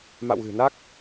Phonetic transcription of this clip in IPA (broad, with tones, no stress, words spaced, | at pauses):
ma̰˧˨wɣɨ̤˨˩na˦˥k̚